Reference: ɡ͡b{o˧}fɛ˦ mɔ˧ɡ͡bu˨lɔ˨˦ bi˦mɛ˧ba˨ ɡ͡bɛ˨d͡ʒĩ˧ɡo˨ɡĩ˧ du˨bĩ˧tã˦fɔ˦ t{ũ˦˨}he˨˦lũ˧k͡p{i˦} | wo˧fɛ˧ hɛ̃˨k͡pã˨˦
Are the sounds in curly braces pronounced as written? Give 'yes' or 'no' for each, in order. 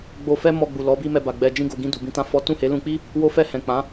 yes, yes, yes

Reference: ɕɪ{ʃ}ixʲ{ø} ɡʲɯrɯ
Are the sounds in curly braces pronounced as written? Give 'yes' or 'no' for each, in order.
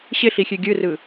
no, yes

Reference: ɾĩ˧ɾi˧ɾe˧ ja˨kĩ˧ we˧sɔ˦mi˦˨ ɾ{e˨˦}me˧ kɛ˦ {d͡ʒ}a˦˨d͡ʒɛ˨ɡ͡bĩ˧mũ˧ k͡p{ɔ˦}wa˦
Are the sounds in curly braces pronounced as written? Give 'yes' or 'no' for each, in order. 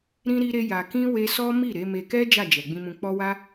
yes, yes, yes

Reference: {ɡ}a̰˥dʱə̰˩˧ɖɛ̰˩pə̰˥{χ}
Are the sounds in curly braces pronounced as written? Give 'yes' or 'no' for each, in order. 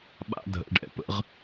no, no

